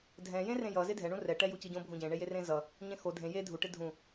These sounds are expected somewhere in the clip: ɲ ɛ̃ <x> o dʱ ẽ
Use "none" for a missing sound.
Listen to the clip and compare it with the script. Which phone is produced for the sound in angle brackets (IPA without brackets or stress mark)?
x